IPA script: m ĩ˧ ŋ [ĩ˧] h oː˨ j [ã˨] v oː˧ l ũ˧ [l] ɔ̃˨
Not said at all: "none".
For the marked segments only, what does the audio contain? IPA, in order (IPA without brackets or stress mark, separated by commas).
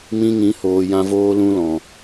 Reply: ĩ˨˦, ã˧, l